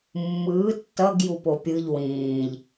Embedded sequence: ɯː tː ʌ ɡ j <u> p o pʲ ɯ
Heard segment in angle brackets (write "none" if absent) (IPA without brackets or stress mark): u